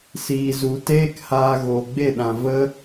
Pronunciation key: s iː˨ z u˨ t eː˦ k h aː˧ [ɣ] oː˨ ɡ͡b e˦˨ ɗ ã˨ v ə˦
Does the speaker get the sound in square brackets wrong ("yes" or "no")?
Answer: no